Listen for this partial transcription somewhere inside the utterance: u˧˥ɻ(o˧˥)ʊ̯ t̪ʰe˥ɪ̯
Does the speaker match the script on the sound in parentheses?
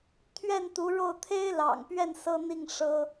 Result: no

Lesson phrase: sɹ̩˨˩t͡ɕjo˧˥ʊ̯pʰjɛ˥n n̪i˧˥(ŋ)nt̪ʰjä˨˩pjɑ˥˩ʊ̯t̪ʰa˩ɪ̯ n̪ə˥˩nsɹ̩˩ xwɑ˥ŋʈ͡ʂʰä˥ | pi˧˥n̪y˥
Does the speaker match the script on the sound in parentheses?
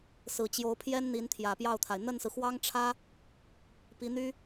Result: no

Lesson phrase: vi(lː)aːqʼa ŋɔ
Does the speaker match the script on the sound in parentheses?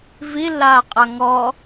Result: yes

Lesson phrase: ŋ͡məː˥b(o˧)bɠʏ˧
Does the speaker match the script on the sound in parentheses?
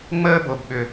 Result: yes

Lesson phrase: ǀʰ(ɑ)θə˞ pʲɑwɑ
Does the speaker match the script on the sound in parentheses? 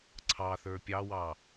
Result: yes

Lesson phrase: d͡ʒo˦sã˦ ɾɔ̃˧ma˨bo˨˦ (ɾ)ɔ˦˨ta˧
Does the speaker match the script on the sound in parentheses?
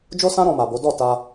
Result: no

